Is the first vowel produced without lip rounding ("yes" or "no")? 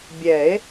yes